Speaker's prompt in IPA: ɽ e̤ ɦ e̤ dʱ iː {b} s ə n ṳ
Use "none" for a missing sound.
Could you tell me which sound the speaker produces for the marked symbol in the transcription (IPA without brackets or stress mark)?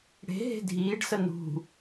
ɖ